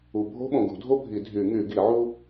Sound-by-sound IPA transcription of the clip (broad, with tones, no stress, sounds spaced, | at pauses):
u˨ bʱ o̤˥ ɓ õ˨ ɡ ṳ˨˩˦ dʱ o˥ bʱ i˨˩˦ dʱ y˨˩˦ ŋ y˨˩˦ ɡ i˨˩˦ ʕ u˥